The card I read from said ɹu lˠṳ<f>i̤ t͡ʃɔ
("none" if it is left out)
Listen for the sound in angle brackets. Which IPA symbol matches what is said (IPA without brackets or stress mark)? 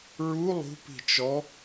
p